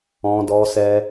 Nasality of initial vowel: nasal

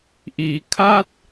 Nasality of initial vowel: oral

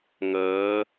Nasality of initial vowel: oral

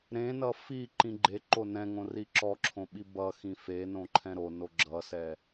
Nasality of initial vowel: nasal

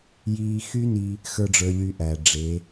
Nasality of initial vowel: oral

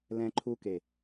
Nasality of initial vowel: nasal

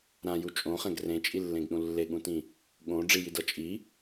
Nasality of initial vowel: nasal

